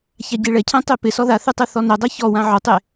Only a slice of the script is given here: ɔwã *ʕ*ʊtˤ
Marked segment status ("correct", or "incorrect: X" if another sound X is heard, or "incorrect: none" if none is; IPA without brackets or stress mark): correct